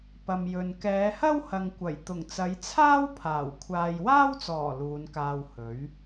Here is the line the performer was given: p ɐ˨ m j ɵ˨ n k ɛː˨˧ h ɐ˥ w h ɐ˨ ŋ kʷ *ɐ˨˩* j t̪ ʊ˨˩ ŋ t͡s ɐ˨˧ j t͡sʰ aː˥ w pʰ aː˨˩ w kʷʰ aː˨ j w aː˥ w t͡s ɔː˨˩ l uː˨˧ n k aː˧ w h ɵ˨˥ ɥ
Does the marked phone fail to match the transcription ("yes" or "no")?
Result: no